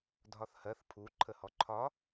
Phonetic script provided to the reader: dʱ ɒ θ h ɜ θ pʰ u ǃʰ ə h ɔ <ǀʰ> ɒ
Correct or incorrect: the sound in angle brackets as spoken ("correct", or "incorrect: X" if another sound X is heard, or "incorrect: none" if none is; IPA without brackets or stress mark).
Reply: incorrect: ǃʰ